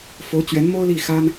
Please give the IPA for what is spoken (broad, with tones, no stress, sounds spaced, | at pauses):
f o˧˥ ʊ̯ t͡ɕ ɥ ɛ˧˥ n m o˥ ʊ̯ l i˥˩ x a˥ n